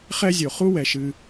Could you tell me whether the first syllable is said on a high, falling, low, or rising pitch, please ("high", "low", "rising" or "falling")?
high